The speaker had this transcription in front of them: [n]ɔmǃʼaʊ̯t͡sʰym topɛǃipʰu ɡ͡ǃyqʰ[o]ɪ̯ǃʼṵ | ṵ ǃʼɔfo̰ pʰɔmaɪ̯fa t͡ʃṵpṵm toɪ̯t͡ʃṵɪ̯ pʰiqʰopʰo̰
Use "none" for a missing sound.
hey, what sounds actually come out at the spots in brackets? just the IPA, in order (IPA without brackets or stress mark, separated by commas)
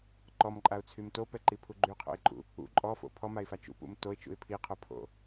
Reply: ǃ, o̰